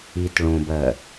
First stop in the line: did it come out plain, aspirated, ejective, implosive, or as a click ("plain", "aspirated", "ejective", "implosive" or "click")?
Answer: plain